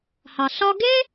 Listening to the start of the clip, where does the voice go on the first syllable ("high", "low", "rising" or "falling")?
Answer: low